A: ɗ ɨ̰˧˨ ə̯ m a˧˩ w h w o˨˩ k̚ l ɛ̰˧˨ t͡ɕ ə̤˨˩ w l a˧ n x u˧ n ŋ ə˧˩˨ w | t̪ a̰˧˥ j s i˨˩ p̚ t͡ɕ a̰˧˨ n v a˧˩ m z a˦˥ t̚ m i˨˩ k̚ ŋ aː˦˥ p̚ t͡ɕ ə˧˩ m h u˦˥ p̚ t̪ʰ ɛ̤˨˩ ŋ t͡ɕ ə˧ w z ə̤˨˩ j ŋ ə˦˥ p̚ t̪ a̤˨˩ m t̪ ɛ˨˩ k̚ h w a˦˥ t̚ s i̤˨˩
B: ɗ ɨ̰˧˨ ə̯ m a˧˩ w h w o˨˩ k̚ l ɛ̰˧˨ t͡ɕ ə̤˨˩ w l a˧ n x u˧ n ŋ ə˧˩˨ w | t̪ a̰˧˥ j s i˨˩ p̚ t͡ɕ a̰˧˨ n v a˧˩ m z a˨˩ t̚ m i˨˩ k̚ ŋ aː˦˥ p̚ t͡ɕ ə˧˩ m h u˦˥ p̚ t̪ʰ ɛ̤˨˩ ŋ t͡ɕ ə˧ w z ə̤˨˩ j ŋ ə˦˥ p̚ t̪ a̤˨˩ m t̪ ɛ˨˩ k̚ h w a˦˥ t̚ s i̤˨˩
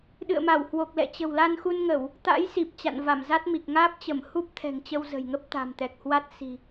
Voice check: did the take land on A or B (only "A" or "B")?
A